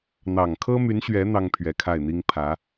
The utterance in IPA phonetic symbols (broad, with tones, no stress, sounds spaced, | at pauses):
n̪ ɑ˨˩ ŋ kʰ ɤ˥ m y˧˥ n ɕ ɥ ɛ˧˥ n̪ ɑ˥ ŋ pʰ ɥ ɛ˧˥ kʰ a˥˩ ɪ̯ n̪ i˥ ŋ pʰ ä˧˥